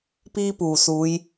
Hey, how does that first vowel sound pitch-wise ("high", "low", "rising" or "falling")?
high